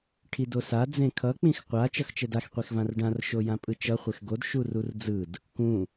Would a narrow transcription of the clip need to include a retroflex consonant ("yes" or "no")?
yes